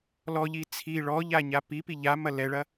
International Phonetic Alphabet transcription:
l ɔ ʎ i t͡sʰ i ɭ ɔ ʎ a ɲ a p i p i ʎ a m ɐ l ɛ ɭ ɐ

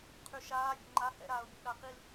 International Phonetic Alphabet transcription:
qʰ y ʃ aː vʲ ɛ̰ ŋ͡ǃ a h ɛ̰ ɾ aː ʊ̯ bʲ ɛ̰ ɗ a q i l

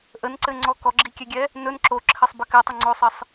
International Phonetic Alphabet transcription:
ʔ ə n ǀ ɘ ŋ͡ǀ ɔ k ɔ ɡ͡ǁ i kʲ ɛ ɡʲ ɛ | n ɵ n ǁ o ǁʰ ɘ sˤ b ə k ɘ tˤ ə ŋ͡ǀ o sˤ ɘ sˤ

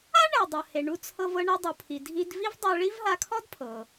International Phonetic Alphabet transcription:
a˥ ɳ ɛ˩ dˤ ɤ˩ h e˩ ɳ u˧ t͡sʰ ɤ˧ v ɤ˧ ɳ ɤ˧ dˤ u˩ pʰ i˩ dʱ i˧ d v i˥ v dˤ ɤ˧ ɭ i˥ v ɦ a˧ kʰ ɔ˥ d pʰ ɤ˩

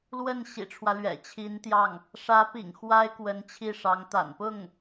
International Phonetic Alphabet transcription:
l w ə˥˩ n ɕ ḭ˨˩ ʈ͡ʂʰ w ä˦ l ɥ ɛ̰˨˩ t͡ɕʰ i˧˥ n t̪ j ɑ˥˩ ŋ | ʂ ä˧˥ p ḭ˨˩ ŋ x w a˥ ɪ̯ k w ə˧˥ n t͡ɕʰ i˥˩ ʂ ɑ˧˥ ŋ t̪ a̰˨˩ n p ʊ˥˩ ŋ

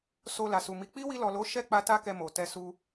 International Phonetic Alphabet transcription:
s o˧ l a˨ s u˨ m i˨˦ k͡p i˦ w i˧ l ɔ˨ l o˨˦ ʃ ɛ˦˨ k͡p a˧ t a˦ k ɛ˧ m o˨ t ɛ˧ s u˧

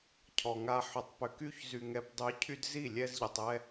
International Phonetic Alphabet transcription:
cʰ ɔ˨ ŋ a˧ ħ ʏ˨ tˤ p ʏ˨ k y˧ ç z y˨ ŋ ɛ˨ p dˤ y˨˦ cʰ y˦ d z i˦˨ lʲ ɛ˧ z ʎ ə˨ tˤ ɛ˧

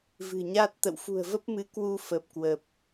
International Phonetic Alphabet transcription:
v ɨ̤˨˩ ɲ a˦˥ t̚ t̪ ə̰˧˨ w f ṳ˨˩ ə̯ v ə˦˥ p̚ m ɨ˨˦ k w u˧ f ə˨˩ p̚ k w ə˨˩ p̚

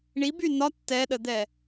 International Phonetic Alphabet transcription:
ɳ i b y n ɒ tː ɛ ɗ ə d̪ ɛ

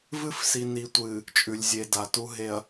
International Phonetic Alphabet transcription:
v ɨ˦ f s i˨ n i˨ tʷ ɨ˨ | t͡ʃʼ ʉ˨ lʲ zʲ e˨ d a˨ t u˨ ɦ e˨ ɐ̯

